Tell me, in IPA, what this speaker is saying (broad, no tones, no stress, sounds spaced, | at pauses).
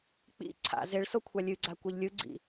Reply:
k͡p ḭ ǀʰ a̰ z e ɭ s o kʷʰ a lʲ ɨ ɡ͡ǀ a kʷ e ʎ lʲ ɯ ɡ͡ǀ ḭ